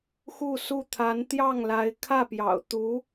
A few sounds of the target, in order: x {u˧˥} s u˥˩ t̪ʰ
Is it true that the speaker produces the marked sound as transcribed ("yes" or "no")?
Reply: no